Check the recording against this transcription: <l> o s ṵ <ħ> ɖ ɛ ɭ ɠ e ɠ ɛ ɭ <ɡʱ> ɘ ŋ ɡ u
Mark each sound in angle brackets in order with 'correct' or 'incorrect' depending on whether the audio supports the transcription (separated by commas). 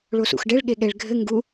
incorrect, incorrect, correct